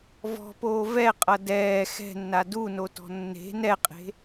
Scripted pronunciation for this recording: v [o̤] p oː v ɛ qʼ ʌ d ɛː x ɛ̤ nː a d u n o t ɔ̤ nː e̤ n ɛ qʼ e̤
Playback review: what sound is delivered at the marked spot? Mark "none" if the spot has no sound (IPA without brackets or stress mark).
ɔ̤